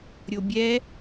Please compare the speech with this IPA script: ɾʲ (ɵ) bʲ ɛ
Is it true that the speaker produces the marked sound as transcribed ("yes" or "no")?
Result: no